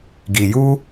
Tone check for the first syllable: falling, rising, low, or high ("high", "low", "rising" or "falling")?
low